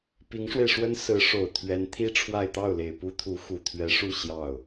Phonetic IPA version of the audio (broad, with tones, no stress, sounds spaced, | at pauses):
p i˧˥ ŋ ʂ w e˧ ɪ̯ ʂ w ə˥ n s ɹ̩˧˥ ʂ o˨˩ ʊ̯ t̪ʰ ɥ ɛ˧˥ n t̪ʰ i˥ ʈ͡ʂʰ w a˥˧ ɪ̯ t̪ ɑ˥˩ ʊ̯ l e˨˩ ɪ̯ p u˥ t̪ʰ u˧˥ x u˨˩ t̪ʰ ɥ ɛ˧˥ ʂ u˥˧ ɕ j ɑ˥˩ ʊ̯